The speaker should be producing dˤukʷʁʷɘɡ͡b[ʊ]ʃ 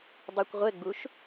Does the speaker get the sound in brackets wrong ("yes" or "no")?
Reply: yes